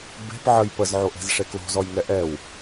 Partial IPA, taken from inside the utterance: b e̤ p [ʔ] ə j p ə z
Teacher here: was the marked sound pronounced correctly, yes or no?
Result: no